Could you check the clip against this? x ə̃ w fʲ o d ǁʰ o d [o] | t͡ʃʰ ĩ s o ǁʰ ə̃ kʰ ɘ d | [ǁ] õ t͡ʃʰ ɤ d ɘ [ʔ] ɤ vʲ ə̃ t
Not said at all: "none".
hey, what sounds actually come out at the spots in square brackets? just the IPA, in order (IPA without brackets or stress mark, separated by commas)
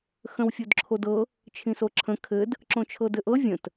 ɤ, ǁ, ʔ